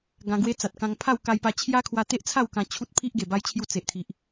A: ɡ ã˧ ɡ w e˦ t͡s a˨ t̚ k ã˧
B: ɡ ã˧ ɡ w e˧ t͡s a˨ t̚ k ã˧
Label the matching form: A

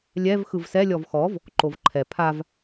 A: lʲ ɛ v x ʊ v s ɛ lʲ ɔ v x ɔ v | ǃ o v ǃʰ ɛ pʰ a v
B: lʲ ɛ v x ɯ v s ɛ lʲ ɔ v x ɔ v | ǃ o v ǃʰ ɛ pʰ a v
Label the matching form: B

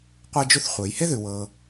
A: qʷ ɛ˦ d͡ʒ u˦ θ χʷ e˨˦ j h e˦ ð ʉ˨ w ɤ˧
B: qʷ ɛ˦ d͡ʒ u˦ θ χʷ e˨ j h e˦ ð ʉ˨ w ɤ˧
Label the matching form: A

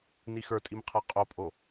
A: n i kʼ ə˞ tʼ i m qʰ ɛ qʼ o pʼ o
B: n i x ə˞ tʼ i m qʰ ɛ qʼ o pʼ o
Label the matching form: B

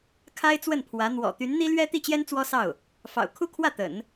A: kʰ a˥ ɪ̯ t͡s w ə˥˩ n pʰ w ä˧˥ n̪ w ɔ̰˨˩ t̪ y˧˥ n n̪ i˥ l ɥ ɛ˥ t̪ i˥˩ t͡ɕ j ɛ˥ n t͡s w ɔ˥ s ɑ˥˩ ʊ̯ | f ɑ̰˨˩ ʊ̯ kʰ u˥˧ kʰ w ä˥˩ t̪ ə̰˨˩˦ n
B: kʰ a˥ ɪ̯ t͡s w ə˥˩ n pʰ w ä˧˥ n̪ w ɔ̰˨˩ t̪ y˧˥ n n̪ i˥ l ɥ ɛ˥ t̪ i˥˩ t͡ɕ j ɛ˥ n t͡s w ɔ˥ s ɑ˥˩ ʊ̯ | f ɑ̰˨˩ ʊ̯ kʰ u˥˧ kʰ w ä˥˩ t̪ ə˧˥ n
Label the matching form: A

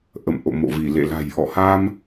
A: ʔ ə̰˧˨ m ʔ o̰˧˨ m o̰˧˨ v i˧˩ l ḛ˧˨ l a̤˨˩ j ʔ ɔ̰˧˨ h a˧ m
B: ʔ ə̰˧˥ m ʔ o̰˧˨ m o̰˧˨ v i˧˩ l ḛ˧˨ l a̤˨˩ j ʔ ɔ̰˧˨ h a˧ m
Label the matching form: A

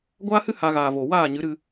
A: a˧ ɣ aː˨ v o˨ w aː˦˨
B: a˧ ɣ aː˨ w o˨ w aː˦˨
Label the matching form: A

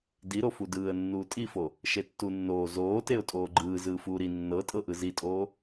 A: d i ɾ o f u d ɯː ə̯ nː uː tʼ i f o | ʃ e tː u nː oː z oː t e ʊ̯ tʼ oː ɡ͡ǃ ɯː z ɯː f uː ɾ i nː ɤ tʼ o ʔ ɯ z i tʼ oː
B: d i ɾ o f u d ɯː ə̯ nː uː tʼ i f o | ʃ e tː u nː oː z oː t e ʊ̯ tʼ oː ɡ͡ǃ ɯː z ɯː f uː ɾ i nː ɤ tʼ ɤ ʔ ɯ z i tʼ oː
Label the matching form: B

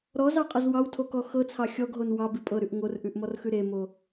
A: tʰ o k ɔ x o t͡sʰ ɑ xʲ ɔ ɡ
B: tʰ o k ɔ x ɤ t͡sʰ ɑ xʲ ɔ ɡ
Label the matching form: B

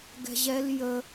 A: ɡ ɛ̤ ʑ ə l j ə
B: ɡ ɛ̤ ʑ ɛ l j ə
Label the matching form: B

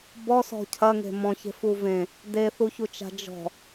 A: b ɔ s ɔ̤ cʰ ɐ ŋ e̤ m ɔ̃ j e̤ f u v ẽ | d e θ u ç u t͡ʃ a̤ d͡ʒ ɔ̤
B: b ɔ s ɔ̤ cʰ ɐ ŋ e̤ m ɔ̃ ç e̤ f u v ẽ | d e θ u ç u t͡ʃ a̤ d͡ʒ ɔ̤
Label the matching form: B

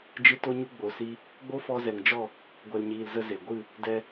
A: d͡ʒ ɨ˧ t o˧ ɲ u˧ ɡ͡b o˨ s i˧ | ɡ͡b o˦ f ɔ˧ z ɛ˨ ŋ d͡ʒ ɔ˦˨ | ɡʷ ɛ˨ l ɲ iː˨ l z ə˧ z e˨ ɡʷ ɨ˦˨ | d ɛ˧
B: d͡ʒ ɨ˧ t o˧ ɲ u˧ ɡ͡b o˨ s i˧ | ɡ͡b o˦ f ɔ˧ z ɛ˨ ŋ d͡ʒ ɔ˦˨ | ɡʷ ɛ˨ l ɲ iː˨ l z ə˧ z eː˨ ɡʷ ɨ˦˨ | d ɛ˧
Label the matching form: A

